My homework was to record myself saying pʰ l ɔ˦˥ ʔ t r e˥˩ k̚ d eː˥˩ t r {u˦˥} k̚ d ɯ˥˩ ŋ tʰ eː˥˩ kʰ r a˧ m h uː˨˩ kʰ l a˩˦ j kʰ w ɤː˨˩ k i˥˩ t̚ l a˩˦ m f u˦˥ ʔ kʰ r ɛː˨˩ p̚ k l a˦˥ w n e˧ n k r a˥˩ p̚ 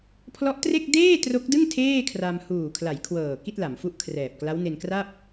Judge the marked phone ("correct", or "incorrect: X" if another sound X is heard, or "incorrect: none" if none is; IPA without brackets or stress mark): incorrect: o˦˥